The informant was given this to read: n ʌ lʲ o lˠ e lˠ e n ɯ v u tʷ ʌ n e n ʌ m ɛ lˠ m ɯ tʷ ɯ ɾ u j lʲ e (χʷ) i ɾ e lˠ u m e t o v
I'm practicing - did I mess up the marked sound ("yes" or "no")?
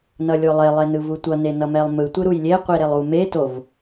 yes